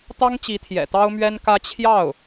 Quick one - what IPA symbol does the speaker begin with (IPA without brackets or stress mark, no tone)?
t̪